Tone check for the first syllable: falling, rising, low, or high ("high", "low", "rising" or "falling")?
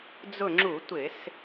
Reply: falling